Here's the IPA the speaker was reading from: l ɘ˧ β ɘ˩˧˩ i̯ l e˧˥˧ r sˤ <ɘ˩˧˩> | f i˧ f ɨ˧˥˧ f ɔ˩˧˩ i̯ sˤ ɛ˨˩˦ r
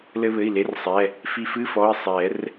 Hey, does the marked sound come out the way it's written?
no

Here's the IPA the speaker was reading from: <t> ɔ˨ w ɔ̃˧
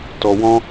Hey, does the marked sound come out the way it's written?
yes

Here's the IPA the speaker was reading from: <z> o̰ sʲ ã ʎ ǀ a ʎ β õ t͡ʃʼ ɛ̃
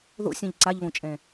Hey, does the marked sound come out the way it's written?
no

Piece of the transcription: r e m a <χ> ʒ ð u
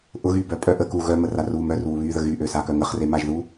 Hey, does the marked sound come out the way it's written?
no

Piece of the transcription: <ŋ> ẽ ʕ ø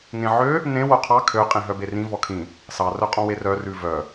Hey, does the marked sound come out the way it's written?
yes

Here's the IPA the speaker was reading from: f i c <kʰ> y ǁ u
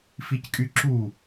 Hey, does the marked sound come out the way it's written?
no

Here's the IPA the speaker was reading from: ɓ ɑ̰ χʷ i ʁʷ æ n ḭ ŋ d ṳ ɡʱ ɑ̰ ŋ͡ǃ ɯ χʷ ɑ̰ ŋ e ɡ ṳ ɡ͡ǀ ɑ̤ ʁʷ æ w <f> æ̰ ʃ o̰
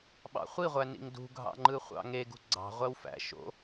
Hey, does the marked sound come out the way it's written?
yes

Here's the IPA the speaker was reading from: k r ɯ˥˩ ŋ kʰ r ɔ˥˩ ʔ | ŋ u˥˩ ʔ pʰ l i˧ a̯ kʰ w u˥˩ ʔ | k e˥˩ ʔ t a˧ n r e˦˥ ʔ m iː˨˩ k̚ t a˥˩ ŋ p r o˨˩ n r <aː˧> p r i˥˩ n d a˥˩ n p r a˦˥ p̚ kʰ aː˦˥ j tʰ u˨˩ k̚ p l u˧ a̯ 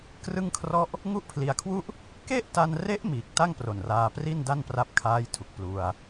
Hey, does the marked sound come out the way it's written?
yes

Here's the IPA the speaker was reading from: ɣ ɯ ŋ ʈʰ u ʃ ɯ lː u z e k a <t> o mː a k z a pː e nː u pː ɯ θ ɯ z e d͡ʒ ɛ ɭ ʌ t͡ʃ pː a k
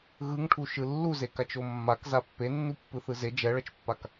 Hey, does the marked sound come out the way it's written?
no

